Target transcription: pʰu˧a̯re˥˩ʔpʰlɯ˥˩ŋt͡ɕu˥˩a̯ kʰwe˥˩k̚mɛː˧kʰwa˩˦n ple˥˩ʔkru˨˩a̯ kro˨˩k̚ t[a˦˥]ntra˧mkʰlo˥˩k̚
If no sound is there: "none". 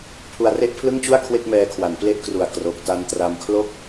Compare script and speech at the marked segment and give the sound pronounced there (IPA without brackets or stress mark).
a˧